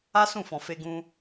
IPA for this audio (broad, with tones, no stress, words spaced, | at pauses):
a˦sũ˦˨fɔ̃˨ fe˧ɡũ˧